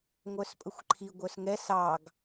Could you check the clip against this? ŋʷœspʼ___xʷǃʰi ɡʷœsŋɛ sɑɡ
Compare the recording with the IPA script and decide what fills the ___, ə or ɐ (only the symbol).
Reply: ə